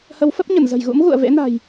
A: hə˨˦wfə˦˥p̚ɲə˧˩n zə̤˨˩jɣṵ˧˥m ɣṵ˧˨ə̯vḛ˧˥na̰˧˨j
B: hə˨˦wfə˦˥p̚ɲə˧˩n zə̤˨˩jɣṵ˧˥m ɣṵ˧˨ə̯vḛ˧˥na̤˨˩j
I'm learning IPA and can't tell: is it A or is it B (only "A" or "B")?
B